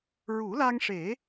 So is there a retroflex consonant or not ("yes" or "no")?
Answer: yes